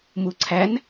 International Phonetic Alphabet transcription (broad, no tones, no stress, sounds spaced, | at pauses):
m u ǀʰ æ n